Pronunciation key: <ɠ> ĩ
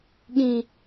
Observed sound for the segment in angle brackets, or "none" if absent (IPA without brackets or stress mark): ɠ